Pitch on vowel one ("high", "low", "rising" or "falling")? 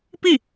falling